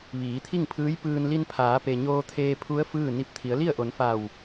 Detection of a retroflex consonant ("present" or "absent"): absent